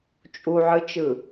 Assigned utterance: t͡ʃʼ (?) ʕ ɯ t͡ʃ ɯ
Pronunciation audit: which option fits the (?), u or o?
u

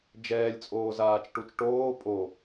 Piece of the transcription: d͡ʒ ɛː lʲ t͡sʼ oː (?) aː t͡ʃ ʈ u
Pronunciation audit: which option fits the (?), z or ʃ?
z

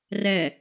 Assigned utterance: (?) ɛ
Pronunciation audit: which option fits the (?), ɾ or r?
r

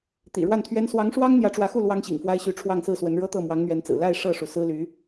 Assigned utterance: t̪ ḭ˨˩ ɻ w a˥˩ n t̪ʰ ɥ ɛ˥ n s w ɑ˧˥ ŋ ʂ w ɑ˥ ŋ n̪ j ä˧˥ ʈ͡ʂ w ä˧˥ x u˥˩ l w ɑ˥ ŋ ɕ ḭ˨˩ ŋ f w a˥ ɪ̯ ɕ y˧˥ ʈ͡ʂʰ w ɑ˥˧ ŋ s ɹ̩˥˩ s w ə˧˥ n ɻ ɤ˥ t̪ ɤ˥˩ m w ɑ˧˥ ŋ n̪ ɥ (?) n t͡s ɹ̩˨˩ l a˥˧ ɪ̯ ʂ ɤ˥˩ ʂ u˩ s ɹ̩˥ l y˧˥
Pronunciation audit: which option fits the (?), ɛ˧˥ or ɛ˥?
ɛ˧˥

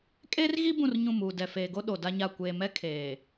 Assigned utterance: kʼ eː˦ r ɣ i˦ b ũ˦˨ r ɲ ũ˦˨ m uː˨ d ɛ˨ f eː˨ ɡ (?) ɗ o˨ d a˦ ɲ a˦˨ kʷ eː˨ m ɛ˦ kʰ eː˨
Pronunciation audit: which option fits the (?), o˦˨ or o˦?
o˦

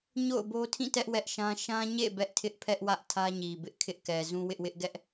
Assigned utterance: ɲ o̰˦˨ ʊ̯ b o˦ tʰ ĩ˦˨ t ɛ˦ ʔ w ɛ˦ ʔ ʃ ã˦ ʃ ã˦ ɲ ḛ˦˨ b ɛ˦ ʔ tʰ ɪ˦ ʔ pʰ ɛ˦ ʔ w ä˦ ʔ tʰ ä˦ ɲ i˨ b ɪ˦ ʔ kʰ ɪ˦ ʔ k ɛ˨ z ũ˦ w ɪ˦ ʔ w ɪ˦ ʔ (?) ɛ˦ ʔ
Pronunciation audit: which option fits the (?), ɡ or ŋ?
ɡ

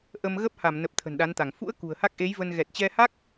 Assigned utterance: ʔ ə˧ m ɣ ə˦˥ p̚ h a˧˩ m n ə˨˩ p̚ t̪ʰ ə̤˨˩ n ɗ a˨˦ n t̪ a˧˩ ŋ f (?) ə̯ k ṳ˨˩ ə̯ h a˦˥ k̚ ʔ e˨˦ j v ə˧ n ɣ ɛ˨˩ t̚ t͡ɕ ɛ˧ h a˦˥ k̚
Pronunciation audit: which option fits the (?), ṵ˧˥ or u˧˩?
ṵ˧˥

